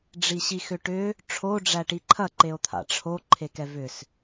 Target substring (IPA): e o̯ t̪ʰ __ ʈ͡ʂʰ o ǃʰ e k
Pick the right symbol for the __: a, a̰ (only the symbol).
a̰